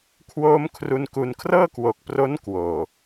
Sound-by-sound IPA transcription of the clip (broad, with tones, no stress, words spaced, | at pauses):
kʰwoː˦˥mkʰru˧nku˧n kʰrɤː˥˩kwo˨˩k̚pro˦˥n kwoː˨˩